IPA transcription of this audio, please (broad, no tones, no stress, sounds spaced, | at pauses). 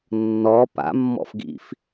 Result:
nː ɔ p a̰ mː ɔ̰ f ɡ ḭ f